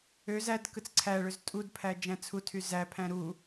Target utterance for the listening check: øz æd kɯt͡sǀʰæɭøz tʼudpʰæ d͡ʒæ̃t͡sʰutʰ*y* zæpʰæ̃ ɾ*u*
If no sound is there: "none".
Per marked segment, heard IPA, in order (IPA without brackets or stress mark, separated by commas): y, u